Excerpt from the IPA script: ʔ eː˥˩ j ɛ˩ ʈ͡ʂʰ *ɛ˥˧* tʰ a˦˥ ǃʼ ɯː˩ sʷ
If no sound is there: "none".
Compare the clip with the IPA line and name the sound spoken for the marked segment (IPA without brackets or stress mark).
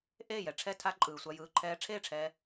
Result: ɛ˥˧